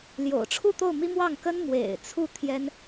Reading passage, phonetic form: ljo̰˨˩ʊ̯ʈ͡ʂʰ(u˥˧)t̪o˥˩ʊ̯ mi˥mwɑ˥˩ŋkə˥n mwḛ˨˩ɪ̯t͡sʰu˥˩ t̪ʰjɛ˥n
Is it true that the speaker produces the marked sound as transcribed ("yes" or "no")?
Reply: yes